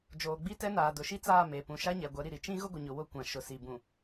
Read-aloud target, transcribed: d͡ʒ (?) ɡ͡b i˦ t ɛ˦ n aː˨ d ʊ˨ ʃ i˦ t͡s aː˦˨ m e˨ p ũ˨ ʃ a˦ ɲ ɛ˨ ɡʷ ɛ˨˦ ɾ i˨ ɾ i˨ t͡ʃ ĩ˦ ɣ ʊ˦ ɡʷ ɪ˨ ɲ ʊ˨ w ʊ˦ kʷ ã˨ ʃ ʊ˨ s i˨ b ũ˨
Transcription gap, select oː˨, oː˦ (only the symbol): oː˨